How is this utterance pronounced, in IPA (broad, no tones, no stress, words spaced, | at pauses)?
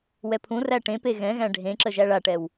wɛpʰũ ræʈẽpe ɣɛ̃ɣæ̃ ɖʱẽǁə ʒæɭaʈɛw